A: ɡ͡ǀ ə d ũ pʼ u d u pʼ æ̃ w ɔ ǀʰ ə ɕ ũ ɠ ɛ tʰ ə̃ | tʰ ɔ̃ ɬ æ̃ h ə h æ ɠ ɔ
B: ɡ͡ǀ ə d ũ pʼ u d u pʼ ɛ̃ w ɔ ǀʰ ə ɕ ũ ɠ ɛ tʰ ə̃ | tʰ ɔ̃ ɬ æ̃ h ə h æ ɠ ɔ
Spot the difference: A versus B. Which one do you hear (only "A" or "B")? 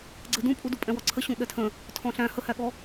B